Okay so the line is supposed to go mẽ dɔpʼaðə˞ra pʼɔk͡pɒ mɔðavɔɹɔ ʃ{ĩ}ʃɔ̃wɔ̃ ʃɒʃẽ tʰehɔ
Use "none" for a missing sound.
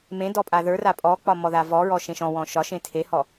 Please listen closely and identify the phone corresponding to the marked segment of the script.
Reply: ẽ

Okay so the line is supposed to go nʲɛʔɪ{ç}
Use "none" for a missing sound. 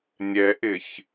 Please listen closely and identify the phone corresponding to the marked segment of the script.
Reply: ç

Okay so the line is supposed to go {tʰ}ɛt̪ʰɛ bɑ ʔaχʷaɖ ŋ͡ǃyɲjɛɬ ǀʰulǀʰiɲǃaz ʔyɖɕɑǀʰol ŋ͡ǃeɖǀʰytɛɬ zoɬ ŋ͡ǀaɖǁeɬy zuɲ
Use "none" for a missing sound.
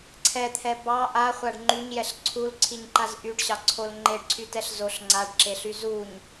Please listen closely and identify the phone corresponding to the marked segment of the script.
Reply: ǀʰ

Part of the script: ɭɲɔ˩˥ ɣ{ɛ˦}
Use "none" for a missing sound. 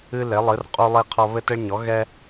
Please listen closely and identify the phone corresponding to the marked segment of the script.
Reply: ɛ˦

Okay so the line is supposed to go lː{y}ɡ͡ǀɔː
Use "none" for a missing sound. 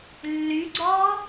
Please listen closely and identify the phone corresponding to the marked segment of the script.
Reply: y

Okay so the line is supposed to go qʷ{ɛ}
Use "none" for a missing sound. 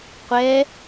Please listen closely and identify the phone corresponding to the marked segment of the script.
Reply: ɛ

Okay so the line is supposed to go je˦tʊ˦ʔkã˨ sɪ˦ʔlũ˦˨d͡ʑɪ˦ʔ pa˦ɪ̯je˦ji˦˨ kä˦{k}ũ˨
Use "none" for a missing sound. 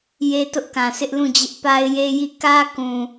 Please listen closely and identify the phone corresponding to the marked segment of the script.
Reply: k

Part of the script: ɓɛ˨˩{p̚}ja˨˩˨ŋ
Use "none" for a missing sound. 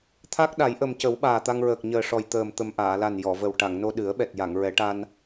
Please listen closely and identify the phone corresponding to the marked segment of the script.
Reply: t̚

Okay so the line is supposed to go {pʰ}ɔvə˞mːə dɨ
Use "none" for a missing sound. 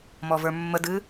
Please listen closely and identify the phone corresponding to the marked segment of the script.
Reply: m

